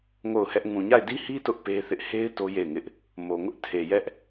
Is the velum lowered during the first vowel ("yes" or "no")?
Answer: no